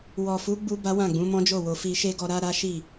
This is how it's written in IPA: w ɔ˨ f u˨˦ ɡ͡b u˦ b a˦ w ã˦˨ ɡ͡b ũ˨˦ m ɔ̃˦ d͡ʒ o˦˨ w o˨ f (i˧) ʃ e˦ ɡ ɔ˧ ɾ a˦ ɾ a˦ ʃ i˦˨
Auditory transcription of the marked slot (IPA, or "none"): i˧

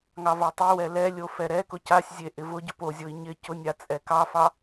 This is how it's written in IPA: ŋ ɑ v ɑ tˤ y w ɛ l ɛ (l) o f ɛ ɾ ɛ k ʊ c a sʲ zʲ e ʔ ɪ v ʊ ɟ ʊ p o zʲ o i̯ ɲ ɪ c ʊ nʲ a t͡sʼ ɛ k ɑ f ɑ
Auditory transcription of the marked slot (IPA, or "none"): lʲ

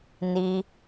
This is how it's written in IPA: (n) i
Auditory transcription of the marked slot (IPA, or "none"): n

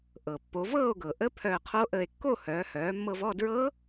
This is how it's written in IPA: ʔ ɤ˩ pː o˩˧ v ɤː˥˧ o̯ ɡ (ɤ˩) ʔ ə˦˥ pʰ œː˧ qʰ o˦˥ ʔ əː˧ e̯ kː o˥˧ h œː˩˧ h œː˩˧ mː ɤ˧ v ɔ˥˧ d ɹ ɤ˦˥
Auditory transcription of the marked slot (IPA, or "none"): ɤ˩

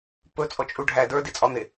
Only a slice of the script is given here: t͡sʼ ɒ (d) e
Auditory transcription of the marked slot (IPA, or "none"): n̪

